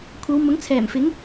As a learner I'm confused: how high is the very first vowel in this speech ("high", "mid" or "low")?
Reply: low